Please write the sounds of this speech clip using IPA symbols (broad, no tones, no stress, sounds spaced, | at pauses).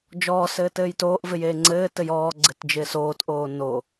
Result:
d͡ʒ ɔː s ɘː t ɘː j t oː ʔ v ɪ j eː ŋ͡ǀ ɘː t ɘ j ɔː ɡ͡ǀ ɘ t d͡ʒ ɪː s oː t ʔ oː n o